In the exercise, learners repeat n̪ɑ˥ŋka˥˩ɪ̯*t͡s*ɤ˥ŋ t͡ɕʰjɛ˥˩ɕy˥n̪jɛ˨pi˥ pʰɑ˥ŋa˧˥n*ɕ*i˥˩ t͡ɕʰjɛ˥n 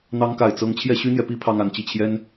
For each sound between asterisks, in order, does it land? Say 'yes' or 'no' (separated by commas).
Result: yes, no